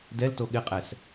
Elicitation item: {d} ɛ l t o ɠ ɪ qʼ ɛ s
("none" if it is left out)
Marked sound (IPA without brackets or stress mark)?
d